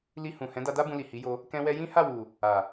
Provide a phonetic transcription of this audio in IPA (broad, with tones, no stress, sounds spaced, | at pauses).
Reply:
l i˧ h ũ˨ h ɛ̃˨˦ d a˧ d a˦ b ũ˧ l i˨ h i˨˦ j o˧ | k ɛ̃˧ w ɛ˧ j ĩ˦ h a˦˨ w u˨ | a˨